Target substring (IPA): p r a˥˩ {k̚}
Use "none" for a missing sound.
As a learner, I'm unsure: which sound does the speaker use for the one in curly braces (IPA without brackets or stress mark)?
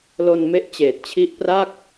k̚